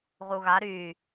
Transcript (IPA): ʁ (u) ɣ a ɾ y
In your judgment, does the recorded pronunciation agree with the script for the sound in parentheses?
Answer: yes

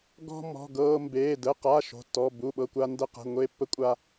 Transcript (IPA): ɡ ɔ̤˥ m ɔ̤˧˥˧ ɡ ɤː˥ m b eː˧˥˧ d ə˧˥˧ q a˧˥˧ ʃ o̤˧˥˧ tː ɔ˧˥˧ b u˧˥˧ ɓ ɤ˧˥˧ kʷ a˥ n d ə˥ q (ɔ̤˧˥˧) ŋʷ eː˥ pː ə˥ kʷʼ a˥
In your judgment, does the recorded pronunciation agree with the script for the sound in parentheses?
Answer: no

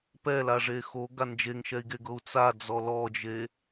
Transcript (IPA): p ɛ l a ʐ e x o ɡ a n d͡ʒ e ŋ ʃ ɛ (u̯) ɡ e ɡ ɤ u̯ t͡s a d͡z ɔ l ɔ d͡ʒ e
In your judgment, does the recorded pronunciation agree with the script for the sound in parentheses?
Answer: no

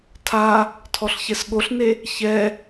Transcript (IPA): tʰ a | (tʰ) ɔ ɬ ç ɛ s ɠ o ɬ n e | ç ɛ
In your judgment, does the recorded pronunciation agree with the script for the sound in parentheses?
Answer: yes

